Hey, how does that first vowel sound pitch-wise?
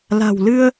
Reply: low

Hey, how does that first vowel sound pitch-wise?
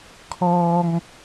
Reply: high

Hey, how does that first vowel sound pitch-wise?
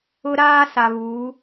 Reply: high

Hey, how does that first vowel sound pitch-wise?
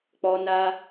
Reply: high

